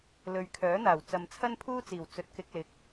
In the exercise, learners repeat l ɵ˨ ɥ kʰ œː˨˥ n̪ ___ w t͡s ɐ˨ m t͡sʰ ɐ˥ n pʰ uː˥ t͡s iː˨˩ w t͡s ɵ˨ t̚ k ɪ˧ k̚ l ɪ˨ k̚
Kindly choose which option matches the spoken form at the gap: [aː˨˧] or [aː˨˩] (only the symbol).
aː˨˩